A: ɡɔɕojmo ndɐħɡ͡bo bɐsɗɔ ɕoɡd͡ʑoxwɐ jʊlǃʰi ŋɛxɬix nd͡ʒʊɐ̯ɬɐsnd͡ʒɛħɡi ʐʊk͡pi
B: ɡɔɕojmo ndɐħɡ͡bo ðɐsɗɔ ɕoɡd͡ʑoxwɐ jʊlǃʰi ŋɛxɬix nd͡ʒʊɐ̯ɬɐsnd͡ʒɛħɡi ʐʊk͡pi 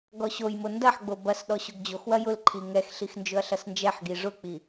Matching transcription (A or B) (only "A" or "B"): A